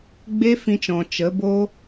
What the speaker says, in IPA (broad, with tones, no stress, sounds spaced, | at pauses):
ɡ͡b e˦ f ĩ˧ t͡ʃ ɔ̃˨ t͡ʃ ə˨˦ b oː˦